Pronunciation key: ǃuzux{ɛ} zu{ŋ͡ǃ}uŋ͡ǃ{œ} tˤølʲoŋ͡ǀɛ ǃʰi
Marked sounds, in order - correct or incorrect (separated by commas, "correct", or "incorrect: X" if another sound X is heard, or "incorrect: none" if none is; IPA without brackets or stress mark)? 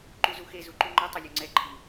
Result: incorrect: e, incorrect: ǃ, correct